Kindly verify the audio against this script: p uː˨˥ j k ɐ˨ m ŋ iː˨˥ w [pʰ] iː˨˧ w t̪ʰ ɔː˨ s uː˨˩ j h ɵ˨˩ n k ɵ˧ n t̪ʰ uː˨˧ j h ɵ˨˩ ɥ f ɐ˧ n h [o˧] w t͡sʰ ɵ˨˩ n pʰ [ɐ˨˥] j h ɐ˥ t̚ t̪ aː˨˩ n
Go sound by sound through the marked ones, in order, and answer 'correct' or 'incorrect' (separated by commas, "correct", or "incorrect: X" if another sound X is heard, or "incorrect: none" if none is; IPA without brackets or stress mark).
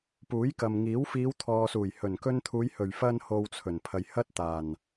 incorrect: f, correct, incorrect: ɐ˨